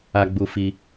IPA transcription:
a˧ ɡ͡bu˧ fi˧

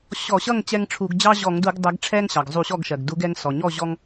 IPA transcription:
ɕɔ˧˩˧ɕʌ˥˨ŋ t͡ɕɛ˦ŋʈ͡ʂʰu˧˩˧ɡ d͡ʑɑ˦ʑɔ˧˩˧ŋdu˧˩˧ɡ dˤɛ˨˦ɡʈ͡ʂʰɛ˦ŋ ɕɑ˩ɡzˤu˧˩˧ɕɔ˥˨ɡʃɜ˩ɡ du˨˦ɡɛ˨˦ŋsɔ˩ɲɔ˥˨ ʑɔ˦ŋ

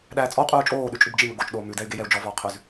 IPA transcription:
ɗæːt͡sʼɔu̯ qʼʉːu̯t͡ʃʼoː ɗʉt͡ʃʼʉbd͡ʒimɵ ɡot͡ʃɗoː mʉdɛy̯ɡejɛu̯ d͡ʒɔvɔːqʰʉz

